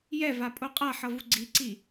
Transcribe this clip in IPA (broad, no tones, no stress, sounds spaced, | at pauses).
j ɛ v a pʼ o qʼ a ħ ʌ v u ɡ͡ǀ i ǀ i